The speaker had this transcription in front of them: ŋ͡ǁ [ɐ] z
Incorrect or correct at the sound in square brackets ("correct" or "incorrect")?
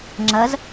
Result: correct